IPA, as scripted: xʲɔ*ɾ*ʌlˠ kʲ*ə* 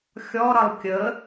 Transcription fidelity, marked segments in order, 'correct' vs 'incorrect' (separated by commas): correct, correct